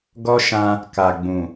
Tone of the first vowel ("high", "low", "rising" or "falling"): high